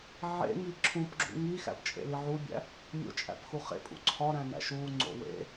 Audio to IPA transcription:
ʕḛŋi ǁʰũpɡ͡ǁṵ ŋi xæ̰pt͡ʃʼḛli ʕubʲæ̰ | mʲo̰t͡ʃʼæ̰pxu χḛpʼṵ ǀʰɒɾæ̃næ̰ʃ uŋ͡ǀo̰ wḛ

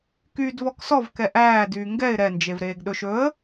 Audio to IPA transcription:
kyːdvɔksɔv kɛʔæː dyːŋɡɛɪ̯ ɾɛ nd͡ʒevɾeːɡɗɵʃ ɵə̯

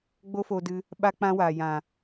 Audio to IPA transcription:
ɡ͡bo˦fo˧dɨ˧ | ɓa˦k͡pã˦waː˨ jã˨

